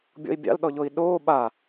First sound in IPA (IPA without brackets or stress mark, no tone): bʲ